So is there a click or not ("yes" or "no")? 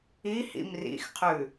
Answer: no